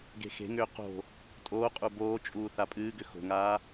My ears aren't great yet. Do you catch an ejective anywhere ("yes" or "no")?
yes